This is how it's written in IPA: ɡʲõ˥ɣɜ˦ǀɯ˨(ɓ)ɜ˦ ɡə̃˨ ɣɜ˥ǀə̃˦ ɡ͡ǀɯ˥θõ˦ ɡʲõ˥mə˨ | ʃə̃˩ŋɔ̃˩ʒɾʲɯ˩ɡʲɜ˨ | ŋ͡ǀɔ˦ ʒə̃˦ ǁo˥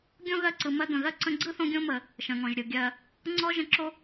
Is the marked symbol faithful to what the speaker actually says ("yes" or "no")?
no